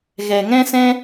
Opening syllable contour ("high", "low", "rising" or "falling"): low